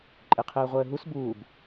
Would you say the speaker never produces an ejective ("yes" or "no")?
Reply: no